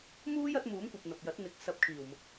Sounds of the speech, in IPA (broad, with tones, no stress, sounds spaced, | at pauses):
m uː˥ j ɐ˨˥ t̚ m uː˨˥ m kʷ ɐ˨ p̚ n̪ ɐ˨ p̚ j ɐ˨˥ t̚ n̪ ɪ˨˥ k̚ s ɐ˧ p̚ kʰ iː˨˩ w m ʊ˨ k̚